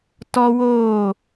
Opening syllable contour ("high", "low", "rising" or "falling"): high